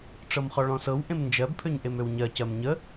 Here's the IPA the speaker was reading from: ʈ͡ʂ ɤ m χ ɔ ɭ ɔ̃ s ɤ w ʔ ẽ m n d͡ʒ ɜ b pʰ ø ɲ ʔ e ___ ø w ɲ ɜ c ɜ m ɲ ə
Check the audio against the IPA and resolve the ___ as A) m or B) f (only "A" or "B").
A